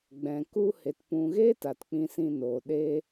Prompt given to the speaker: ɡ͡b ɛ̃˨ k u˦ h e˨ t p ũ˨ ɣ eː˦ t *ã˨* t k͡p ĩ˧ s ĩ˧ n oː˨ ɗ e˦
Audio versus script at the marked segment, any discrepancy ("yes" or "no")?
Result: yes